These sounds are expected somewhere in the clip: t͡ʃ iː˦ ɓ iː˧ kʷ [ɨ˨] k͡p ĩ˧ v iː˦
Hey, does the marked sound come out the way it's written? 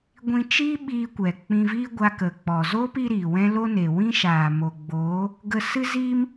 no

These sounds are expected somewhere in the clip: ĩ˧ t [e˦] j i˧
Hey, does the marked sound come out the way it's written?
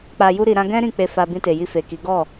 no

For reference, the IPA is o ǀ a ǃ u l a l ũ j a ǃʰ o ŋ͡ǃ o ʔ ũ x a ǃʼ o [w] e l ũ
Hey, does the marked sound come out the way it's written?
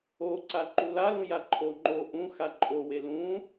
yes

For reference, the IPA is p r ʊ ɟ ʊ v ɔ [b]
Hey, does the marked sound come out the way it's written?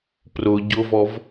no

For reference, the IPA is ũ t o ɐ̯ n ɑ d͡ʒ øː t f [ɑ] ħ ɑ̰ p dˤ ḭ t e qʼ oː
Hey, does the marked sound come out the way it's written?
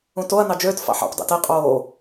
no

